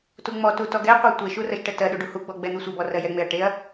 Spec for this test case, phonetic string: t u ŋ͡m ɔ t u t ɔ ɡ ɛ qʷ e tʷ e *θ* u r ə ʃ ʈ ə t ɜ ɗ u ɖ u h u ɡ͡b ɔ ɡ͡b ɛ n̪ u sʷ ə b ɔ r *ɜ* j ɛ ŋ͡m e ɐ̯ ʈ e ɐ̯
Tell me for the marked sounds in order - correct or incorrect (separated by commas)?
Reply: incorrect, correct